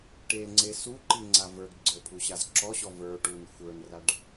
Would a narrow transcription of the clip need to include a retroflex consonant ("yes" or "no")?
yes